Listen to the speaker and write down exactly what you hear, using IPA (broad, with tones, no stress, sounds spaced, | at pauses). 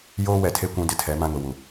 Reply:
j oː˦ w ɛ˨ tʰ e˦ kʷ ũ˦ d ɪ˦ tʰ ɛ˨˦ m ã˦ ŋ ʊ˨ w u˨